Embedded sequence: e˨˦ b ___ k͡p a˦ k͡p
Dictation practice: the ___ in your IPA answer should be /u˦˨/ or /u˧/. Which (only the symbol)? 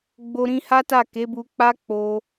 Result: u˧